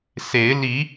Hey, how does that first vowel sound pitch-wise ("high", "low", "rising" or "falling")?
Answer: rising